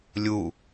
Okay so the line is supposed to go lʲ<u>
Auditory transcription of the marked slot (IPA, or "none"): u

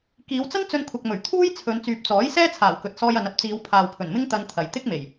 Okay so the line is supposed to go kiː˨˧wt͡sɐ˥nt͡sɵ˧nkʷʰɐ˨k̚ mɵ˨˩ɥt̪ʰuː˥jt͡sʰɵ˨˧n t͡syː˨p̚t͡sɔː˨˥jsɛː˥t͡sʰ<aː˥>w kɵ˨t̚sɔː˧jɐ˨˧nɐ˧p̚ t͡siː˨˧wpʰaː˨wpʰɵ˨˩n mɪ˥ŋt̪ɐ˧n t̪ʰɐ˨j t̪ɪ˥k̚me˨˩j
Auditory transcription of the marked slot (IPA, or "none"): aː˨˩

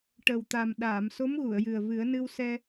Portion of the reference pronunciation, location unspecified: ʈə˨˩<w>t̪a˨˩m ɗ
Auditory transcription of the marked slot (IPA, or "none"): w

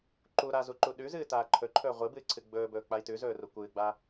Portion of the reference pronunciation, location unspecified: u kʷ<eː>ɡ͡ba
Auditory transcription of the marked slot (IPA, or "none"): ɨː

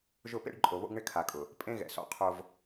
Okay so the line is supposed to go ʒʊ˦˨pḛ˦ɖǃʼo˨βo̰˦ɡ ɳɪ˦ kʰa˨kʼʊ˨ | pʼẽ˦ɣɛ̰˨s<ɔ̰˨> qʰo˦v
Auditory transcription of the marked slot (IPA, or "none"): ɔ̰˨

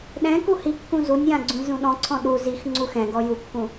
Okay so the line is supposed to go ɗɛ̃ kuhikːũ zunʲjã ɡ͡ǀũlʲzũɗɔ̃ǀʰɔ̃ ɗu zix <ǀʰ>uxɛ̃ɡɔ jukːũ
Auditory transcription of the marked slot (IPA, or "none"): ŋ͡ǀ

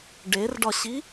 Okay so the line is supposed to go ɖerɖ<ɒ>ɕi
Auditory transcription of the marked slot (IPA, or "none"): ɒ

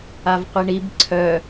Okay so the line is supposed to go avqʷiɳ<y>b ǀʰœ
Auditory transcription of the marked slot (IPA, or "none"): i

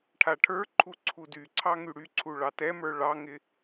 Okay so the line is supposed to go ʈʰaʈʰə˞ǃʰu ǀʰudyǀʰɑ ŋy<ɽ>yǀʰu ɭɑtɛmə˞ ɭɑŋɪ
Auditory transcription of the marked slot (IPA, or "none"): ɽ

